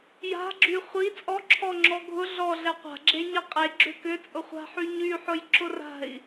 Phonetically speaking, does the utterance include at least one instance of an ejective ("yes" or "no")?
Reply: yes